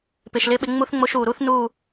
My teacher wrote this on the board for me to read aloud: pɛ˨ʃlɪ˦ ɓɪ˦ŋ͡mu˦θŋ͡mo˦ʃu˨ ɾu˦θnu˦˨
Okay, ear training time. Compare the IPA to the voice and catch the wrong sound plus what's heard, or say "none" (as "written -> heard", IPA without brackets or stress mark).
ɛ˨ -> ɪ˨